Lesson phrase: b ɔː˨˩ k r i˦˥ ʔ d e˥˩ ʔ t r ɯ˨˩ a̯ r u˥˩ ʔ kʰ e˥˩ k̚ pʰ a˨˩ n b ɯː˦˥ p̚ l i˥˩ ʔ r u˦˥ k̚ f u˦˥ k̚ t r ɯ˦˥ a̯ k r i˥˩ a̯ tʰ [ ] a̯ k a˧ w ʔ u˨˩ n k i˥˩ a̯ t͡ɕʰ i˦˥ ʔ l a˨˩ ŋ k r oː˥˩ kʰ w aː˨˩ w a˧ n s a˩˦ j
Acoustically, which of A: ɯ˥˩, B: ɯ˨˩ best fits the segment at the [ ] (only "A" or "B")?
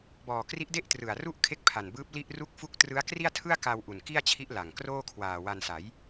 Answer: A